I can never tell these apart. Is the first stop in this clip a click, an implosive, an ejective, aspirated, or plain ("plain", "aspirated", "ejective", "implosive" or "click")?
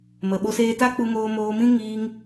implosive